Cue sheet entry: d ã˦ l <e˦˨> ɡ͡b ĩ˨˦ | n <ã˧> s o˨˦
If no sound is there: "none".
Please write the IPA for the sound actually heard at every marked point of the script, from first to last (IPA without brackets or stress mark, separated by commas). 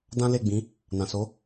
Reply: e˦˨, ã˨